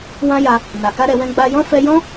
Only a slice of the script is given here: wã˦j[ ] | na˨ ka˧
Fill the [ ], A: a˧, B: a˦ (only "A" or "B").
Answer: A